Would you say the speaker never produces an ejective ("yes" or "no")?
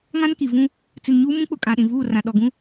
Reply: no